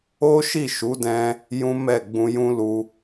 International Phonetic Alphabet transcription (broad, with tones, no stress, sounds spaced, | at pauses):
o˦ ʃ i˦˨ ʃ u˨˦ d ɛ̃˧ | j ũ˦ m ɛ˦˨ ɡ͡b ũ˧ j ũ˦ l u˧